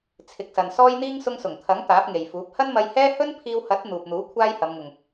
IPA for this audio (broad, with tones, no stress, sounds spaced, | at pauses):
t͡sʰ ɪ˨ k̚ s ɐ˨ n s ɔː˥ j n̪ iː˥ ŋ s ʊ˧ ŋ s ʊ˨˩ ŋ t̪ʰ ɐ˨˥ ŋ t̪ aː˨˥ p̚ ŋ e˨ j f uː˨˥ p̚ h ɐ˥ n m ɐ˧ j h ɛː˥ h ɵ˥ n pʰ iː˧ w h ɐ˨˥ t̚ n̪ uː˨ p̚ n̪ uː˨˥ kʷʰ aː˥ j h ɐ˨˧ m ŋ ʊ˨ ŋ